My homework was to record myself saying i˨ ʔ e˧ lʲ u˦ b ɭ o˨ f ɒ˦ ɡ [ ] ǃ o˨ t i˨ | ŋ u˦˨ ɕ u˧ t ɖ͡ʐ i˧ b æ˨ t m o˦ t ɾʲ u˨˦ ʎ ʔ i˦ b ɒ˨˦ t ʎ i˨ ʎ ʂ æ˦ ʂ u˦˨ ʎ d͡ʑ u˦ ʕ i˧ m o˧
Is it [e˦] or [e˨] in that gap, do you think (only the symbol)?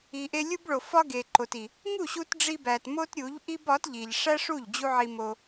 e˨